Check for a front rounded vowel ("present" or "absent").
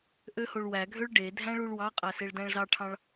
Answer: present